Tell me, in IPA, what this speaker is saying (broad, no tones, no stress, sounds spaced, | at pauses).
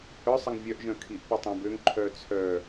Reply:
h œ sˤ ə ŋ vʲ œ ʔ ʒ œ̃ kʰ i ʔ p œ tˤ œ̃ b ø ŋ ǃʰ œː t͡sʰ œ